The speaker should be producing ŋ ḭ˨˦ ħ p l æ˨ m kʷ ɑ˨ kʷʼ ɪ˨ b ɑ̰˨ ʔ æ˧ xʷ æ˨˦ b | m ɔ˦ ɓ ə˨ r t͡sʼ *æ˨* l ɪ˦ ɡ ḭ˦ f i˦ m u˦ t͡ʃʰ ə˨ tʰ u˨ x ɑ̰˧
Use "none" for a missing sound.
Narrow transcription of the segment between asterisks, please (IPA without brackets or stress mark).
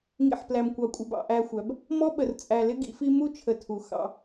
æ˨